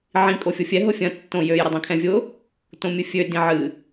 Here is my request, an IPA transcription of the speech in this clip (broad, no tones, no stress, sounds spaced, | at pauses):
ʕ ĩ kʼ o fʲ o fʲ ɛ ɦ ʊ fʲ ɐ̃ tː õ j ø j ɾ ʊ dˤ ĩ kʰ ɛ̃ vʲ ʊ | t õ mʲ ɨ fʲ ø d ĩ ʕ ɨ